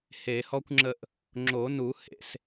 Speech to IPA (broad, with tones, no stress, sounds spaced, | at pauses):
h e˨˩˦ h ɔ˥ kʷ ŋ͡ǁ ə˥˨ ʔ | ŋ͡ǁ o˨˩˦ n u˨˩˦ h ḛ˧˥˧ s